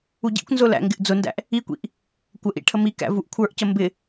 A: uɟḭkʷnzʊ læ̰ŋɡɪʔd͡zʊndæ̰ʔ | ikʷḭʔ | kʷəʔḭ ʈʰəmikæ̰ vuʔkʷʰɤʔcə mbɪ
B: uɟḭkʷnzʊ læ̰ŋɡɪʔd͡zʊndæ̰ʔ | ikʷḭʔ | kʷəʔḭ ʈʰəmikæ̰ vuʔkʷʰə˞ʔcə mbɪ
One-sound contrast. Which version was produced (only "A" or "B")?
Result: B